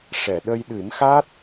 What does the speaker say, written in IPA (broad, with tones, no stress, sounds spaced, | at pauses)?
ʂ ɛ˨˩˨ ɗ ə˧ j ɗ ɨ˨˩˦ m x a˦˥ t̚